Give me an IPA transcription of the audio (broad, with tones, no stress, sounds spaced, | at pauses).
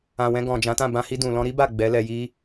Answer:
ã˨ w ɛ̃˧ ɡ ɔ̃˨ d͡ʒ ã˨˦ t ã˦˨ b ã˧ h i˧ d ũ˨ l ɔ̃˧ ɾ i˦ b a˦˨ ɡ͡b ɛ˨˦ l ɛ˧ j i˦